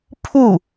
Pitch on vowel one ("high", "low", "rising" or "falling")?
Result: falling